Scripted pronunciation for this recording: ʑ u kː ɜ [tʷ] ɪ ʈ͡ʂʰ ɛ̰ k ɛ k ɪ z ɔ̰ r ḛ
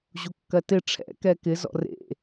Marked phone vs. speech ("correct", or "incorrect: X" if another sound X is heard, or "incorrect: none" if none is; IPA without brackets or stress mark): incorrect: t